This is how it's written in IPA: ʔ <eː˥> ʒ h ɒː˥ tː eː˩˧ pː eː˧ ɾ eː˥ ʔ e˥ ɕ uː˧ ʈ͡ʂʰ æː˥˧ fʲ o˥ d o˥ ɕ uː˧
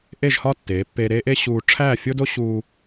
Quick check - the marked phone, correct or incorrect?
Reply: incorrect